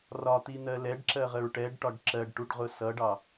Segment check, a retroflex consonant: present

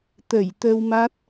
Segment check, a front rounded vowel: absent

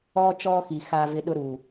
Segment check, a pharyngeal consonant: absent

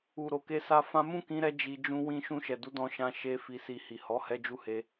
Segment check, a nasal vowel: present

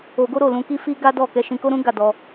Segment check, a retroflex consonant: absent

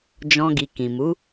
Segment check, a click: absent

